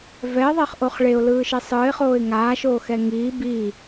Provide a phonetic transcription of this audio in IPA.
v ɛ ɪ̯ ðˤ e χ ʔ o χ ɭ e ʊ̯ l ɯː ʃ e sˤ ɯː ɪ̯ χ oː ɪ̯ ŋ aː ʃ oː x ɛ ŋ iː b i

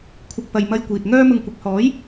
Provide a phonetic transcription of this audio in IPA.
kʷʰ ɪ˨ k̚ p ɐ˨ j m ɐ˧ j kʷ iː˨ t̚ ŋ œː˥ m ʊ˧ ŋ kʷ ɪ˨ k̚ h ɔː˨˥ j

